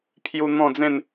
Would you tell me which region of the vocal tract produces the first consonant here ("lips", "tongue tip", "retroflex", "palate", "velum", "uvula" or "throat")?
lips